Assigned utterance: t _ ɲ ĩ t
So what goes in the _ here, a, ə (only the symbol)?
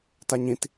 a